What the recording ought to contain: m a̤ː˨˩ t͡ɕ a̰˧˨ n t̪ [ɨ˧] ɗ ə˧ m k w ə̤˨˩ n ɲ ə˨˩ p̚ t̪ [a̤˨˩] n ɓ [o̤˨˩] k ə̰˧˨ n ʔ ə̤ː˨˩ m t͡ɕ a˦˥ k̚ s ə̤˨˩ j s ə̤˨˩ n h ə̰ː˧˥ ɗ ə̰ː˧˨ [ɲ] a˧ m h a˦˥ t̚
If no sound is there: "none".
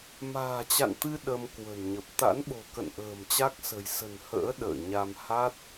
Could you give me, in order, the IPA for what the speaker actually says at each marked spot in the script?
ɨ˧, a̰˧˥, o̤˨˩, ɲ

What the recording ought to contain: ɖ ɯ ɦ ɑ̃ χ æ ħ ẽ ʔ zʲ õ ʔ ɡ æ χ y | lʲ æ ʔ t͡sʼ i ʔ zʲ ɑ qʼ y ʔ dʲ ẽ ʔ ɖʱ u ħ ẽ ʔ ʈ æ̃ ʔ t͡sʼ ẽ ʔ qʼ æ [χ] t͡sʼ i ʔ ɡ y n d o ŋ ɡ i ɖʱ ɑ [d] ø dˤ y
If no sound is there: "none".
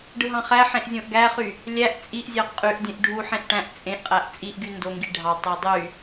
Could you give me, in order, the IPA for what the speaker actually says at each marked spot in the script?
ʔ, tˤ

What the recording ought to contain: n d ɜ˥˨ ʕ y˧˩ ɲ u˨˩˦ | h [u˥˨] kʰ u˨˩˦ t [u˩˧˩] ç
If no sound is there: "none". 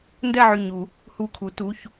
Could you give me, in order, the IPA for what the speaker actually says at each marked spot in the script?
u˧˩, u˩˧˩

